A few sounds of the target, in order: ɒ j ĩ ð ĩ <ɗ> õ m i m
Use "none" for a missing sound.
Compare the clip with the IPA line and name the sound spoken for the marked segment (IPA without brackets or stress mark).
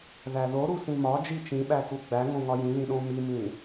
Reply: ɗ